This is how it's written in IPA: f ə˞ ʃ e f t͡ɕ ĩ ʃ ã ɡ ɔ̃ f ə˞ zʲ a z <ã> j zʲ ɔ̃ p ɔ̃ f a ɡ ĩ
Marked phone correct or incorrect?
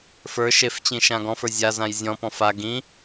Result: correct